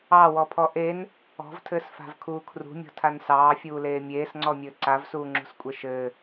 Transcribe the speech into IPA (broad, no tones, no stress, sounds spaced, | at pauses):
ɑ w ɔ pʰ ɔ ʔ e n | ɔ̤ v tʰ ɘː s f a̤ v kʰ uː kʰ r ṳ mʲ ɔ̤ tʰ a n s ɑː fʲ uː l eː mʲ eː s ŋ͡ǀ ɔ mʲ ɘː ǀ a v s uː ŋ͡ǁ ṳ s kʷʼ e ʃ ɘː